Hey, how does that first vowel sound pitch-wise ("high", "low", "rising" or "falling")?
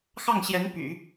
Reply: falling